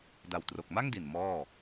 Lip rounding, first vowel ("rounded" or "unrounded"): unrounded